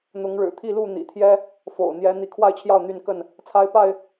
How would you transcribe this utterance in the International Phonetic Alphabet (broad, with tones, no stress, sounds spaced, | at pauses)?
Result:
n̪ ʊ˨˦ ŋ ɻ ɻ̩˨˩ t̪ʰ i˥˨ l u˥˨ n̪ ḭ˨˩ t̪ʰ j ɛ˦ | f o̰˨˩ ʊ̯ n̪ j ɛ˨˦ n̪ i˨˦ kʰ w a˥˨ ɪ̯ t͡ɕʰ j ɑ˥˨ ʊ̯ n̪ y˥˨ n k ə˥˨ n | t͡sʰ a˦ ɪ̯ p a˥˨ ɪ̯